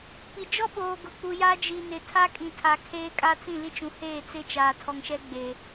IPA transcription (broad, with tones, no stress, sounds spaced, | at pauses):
p i˨ d͡ʒ ɔ˦ ɓ oː˨ ɡ ʊ˨ k͡p u˨ j aː˦ d͡ʒ i˨ n ɪ˨ tʰ a˦ kʼ ĩ˨ tʰ a˨ kʰ eː˦ kʼ a˦ t͡s ĩ˦˨ l i˦ t͡ʃ ũ˨ h eː˦˨ t͡s ɪ˦ t͡ʃ aː˨ tʰ ɔ˨ ŋ ʃ ɛ˦ ɡ͡b eː˨